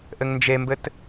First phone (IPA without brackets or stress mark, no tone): ʔ